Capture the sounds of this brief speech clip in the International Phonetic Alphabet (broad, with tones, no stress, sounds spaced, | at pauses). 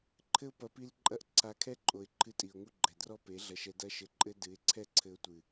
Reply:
ǃʰ ɘ˦ ʊ̯ p ɐ˧ p i˦ l ǃʼ ɐ˦ ʔ ǀʰ a˧ kʰ ɛ˦ ǃʼ o˨ ɪ̯ ǃʰ ɨ˧ tʼ i˨ ʊ̯ ŋ u˦ ɡ͡ǃ ɛ˨ d r ɔ˦ p e˨˦ ɮ ɐ˧ ʃ ɛ˧ d ɐ˦ ʃ ɘ˧ ǃʼ ɘ˦ d ɨ˨˦ ɪ̯ ǀʰ ɛ˦ ǀʰ ɘ˧ ʊ̯ tʷ ɨ˨